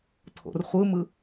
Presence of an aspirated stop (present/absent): present